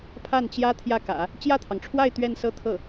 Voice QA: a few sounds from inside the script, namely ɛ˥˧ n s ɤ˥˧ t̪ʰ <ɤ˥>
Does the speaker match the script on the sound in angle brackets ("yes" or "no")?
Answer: no